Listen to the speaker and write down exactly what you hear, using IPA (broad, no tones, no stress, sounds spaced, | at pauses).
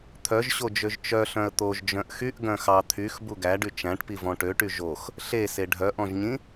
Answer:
t̪ʰ œ ʒ ɕ o d͡ʒ ø ʒ t͡ʃ œ ɬ œ̃ ə̯ t̪ o ʒ d͡ʒ œ̃ ʔ x y ʔ ɡ œ̃ x ɑ t̪ʰ y x b u ɡ æ ɖ y t͡ʃ æ̃ ʈ p i v ɔ̃ ʈ ø ʈ y ʒ o x | ɬ e s e ɖʱ œ ʔ ɔ̃ ʒ ɲ ĩ